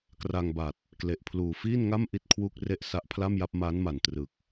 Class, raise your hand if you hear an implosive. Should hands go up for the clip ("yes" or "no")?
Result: no